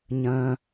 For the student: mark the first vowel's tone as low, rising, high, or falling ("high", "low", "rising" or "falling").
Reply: low